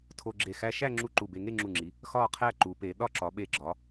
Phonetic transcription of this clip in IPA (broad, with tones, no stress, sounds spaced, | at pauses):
tʰ o˧ ɡ͡ǁ e˧˩ x æ˧ ʃ æ˥˧ ŋ͡ǁ u˥˧ ǃ u˧˩ b e˧ ŋ e˥˧ ŋ͡ǁ u˧˩ ŋ͡ǁ i˩˧ | x ɒ˥˧ qʰ æ˥˧ ǃ u˩˧ p e˩˧ ɗ ɒ˥˧ ǁ ɒ˩˧ ɓ e˧˩ ɡ͡ǁ ɒ˩˧